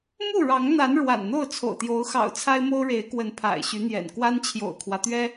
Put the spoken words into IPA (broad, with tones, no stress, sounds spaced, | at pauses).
m u˥˨ ɻ ɑ˨˦ ŋ n̪ a˨˦ n ɻ w a̰˨˩ n n̪ o˥˨ ʊ̯ t͡sʰ o̰˨˩ ʊ̯ t̪ j o˨˦ ʊ̯ x ɑ̰˨˩ ʊ̯ t͡sʰ a˦ ɪ̯ m o˦ ʊ̯ ɻ e˨˦ ɪ̯ k w ə˨˦ n pʰ a̰˨˩ ɪ̯ ɕ y˨˦ n̪ j ɛ̰˨˩ n k w a˦ n t͡ɕʰ j o̰˨˩ ʊ̯ kʰ w ä˦ t̪ ɥ ɛ˦